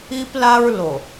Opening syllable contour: high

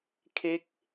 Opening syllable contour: falling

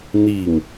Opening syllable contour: low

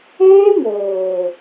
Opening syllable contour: high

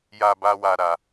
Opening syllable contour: low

